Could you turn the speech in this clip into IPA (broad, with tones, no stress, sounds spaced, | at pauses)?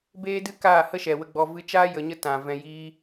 b eː˦ d ɨ˦ k aː˦˨ h ə˦ ʃ ɛ˨ w ə˧ ɡ͡b ɔ˧ v ɨ˧ t͡ʃ aː˦ j ə˧ ɲ ə˦ t ã˨ v ɛ̃˧ j iː˦